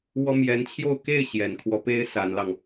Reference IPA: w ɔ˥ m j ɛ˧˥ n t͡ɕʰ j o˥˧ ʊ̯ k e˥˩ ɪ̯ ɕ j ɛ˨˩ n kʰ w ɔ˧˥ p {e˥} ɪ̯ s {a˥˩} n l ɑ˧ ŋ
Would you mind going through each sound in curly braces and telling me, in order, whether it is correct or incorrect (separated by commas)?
incorrect, incorrect